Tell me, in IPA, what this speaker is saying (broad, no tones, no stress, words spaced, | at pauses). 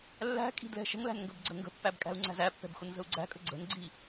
lːæ̤kʼi̤ dlɛ̤ʃə̤ŋlæ̤n ŋɡəbɡ͡ǀəŋɡə̤pːæb kʼæ̤u̯ŋ͡ǀæ̤zæpːɛ̤b xʊnzə̤u̯ɡ͡ǀæ̤kʼə̤ ɡ͡ǀə̤nɡ͡ǀi